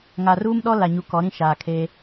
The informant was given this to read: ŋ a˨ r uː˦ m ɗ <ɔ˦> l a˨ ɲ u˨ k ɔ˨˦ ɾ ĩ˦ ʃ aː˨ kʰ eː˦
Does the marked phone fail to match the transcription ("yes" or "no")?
no